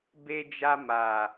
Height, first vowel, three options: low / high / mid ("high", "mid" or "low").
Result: mid